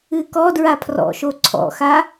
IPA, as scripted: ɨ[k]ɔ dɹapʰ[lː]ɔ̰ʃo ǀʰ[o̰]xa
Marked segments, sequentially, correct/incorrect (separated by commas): correct, incorrect, incorrect